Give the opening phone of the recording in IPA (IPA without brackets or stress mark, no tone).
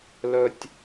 l